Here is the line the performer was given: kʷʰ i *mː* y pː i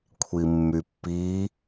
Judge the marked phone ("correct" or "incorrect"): correct